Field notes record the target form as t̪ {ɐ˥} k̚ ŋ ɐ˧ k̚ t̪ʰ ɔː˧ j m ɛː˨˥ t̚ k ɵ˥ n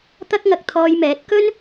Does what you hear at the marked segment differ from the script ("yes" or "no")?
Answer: no